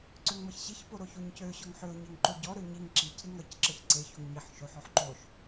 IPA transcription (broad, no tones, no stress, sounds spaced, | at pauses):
ǀ ø ŋ m ʌ ç ɕ i ç p o ɾ o ç o ɲ c ø ɕ ɔ ŋ ħ ø ʊ̯ ɲ e ŋ ǃ o ɟ ɔ ɾ ø ɲ i ŋ ǁ i c ɾ i ŋ ɾ ʌ c ǁ ʌ ç ǀ e ç o ŋ ɲ i ħ ʃ o ħ ɔ ħ ǃ o ʃ